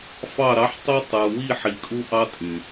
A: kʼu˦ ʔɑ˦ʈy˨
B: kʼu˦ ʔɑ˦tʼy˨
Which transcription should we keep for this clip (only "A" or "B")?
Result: B